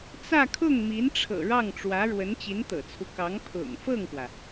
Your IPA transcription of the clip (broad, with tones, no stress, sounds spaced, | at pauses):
t͡s ä˥˧ kʰ ʊ˥˩ ŋ m i˧˥ n ʈ͡ʂʰ ɤ̰˨˩ ɻ ɑ˥˩ ŋ ʈ͡ʂ w ä˧˥ ɻ w ə˧˥ n t͡ɕ i˧˥ n t̪ ɤ̰˨˩ t͡sʰ u˦ k ɑ˧˥ ŋ pʰ ʊ̰˨˩ ŋ f ɤ˥˩ ŋ p w ä˩